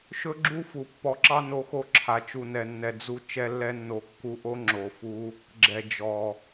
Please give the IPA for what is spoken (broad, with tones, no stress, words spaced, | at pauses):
ʃɵ˦ɡ͡ǁu˦fu˨ pːɔ˧ǁɑ˦ no˧xo˦ǁʰa˨ t͡ʃu˨nɛ˨nːɛ˨ d͡zu˧ t͡ʃɛ˧lːɛ˧nːo˨ kːu˧ʔo˦ ŋ͡ǁo˨fu˧ | ɡ͡ǁɛ˨ d͡ʒɔ˨